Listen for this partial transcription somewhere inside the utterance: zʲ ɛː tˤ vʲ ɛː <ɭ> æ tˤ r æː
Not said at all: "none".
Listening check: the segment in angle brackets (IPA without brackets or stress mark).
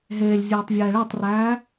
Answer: ɭ